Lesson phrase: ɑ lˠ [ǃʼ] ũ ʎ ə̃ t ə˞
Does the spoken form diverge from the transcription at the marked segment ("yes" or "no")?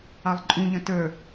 no